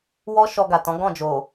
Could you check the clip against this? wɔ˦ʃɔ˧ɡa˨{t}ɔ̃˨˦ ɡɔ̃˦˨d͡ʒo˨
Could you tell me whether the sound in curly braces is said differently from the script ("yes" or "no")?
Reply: no